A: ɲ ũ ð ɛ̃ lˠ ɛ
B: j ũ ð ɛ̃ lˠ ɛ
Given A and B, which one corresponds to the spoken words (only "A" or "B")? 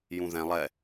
B